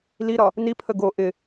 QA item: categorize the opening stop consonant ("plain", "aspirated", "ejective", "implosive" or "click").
aspirated